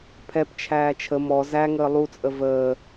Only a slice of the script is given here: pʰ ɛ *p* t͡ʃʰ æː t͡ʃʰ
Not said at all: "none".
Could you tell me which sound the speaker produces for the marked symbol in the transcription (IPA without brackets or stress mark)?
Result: p